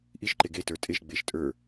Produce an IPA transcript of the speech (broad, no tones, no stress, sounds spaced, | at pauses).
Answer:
ʔ i ʃ ǃ e ɡ e t ə˞ tʼ e ʃ ɡ͡b e ʃ tʼ ə˞